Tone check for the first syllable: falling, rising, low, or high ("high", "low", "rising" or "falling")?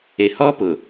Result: low